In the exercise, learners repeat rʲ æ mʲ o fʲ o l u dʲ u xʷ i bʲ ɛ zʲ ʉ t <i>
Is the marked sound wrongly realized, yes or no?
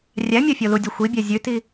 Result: no